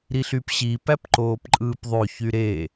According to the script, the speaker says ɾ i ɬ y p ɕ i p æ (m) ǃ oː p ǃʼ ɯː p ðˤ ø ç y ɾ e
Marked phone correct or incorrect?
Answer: incorrect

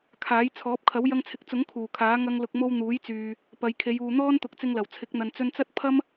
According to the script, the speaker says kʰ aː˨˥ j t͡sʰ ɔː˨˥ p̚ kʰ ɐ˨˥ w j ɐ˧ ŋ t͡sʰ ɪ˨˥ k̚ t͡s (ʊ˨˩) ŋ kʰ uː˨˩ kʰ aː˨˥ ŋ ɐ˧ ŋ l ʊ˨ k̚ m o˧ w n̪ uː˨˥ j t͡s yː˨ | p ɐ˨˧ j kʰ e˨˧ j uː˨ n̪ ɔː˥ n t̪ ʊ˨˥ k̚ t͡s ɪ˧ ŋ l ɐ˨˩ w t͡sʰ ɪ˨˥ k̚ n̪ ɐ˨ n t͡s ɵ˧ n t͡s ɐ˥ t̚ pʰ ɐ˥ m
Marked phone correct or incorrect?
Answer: incorrect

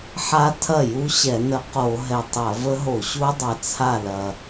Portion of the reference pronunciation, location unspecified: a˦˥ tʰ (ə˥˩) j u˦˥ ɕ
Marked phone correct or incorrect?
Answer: incorrect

